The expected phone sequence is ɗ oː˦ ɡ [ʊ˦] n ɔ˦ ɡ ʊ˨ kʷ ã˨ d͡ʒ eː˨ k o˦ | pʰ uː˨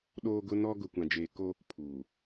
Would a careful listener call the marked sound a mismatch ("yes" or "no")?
no